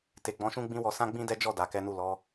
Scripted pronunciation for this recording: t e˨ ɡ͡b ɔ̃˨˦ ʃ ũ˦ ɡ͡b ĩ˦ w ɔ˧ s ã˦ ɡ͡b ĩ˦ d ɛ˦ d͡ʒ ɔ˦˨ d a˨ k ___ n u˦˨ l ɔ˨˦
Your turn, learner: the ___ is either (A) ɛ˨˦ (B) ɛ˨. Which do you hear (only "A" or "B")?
A